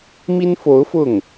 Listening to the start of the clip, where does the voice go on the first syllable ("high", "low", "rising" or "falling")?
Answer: high